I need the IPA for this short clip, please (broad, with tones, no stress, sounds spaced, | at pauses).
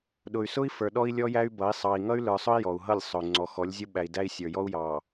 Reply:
ɗ ʊ˨ y̯ s ʊ˦ i̯ f ə˞˨ ɗ ɔ˦ i̯ lʲ ɔ˦ j æ˦ y̯ b ʌ˨˦ i̯ sˤ ɑ˨ i̯ ŋ ʌ˦ y̯ l ə˞˨ sˤ ʊ˦ i̯ j ɔ˨ u̯ ɦ ʌ˦˨ lʲ sˤ ʊ˨ y̯ ŋ͡ǀ ɔ˨ x ɔ˨˦ lʲ zʲ ʊ˦ ɓ æ˨ i̯ d æ˦ i̯ sʲ ə˞˨ j ɔ˦ u̯ j ɑ˨